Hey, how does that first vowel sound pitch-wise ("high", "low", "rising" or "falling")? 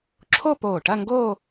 falling